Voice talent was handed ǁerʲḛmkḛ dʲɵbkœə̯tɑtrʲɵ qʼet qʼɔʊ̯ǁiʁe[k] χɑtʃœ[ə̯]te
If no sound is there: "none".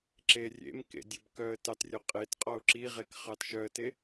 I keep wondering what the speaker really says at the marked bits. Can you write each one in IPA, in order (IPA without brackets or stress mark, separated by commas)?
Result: k, ə̯